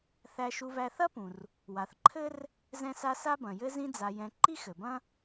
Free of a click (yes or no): no